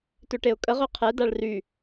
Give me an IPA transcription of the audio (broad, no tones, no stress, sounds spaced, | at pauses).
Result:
t ø ʈ e ʊ̯ kʼ ə ʁ ø qʰ ɛ d a ɭ r y